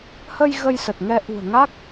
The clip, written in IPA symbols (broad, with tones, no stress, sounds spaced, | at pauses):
h ə˧ j ɣ ə˧ j s ə˨˩ t̚ ŋ ɛ˧ ʔ ṳ˨˩ ə̯ ŋ a˦˥ k̚